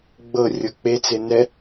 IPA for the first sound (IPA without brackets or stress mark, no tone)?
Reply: ɡ͡b